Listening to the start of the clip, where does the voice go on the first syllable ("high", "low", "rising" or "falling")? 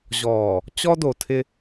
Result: low